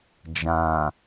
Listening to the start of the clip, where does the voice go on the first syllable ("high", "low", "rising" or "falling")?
low